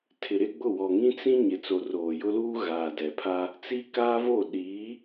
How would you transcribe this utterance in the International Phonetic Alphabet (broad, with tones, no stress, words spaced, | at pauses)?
tʰɪ˨ɾɪ˦ɡ͡bʊ˦˨ wɔ˨ŋĩ˦t͡sĩ˦ ɲɪ˨ t͡so˨roː˨jʊ˦luː˦ ɣaː˨dɛ˨pʰa˦ | t͡si˦kaː˦vo˦˨ ɗiː˨˦